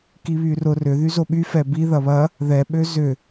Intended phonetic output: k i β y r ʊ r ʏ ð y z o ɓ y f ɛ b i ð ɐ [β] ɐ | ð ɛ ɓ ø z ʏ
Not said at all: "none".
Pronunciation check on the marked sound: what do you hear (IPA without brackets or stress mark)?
β